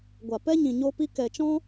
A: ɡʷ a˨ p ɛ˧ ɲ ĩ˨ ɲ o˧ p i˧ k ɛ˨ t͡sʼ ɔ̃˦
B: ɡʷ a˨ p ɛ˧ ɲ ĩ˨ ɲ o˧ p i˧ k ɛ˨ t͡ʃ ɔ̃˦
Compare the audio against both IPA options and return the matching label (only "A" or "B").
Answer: B